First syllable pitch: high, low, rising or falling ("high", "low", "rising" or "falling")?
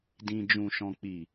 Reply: low